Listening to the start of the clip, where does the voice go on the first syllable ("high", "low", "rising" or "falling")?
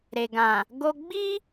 low